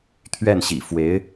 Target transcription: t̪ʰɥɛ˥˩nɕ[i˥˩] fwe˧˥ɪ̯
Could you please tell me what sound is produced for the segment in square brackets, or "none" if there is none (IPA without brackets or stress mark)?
ḭ˨˩